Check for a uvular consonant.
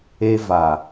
absent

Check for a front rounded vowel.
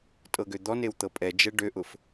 present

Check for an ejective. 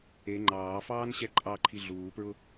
present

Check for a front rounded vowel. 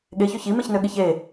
present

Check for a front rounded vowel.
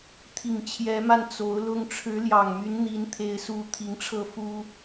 present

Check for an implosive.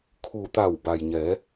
absent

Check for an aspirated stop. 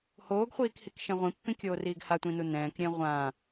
absent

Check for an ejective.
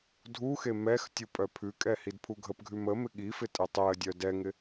present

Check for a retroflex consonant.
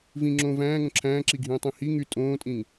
absent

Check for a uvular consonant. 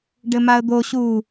absent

